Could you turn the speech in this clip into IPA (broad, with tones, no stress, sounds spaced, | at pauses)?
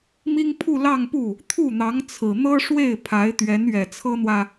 m i˥ ŋ pʰ u˥˧ l ɑ˥˧ ŋ p u˥˩ | t̪ʰ u˥˩ n̪ ɑ˧˥ ŋ t͡sʰ ɹ̩˨˩ n̪ ɤ˥ ʂ w e˥˩ ɪ̯ pʰ a˧˥ ɪ̯ t̪ ɥ ɛ˧˥ n ɥ ɛ˨˩ t͡sʰ ɤ˥ n̪ w ä˨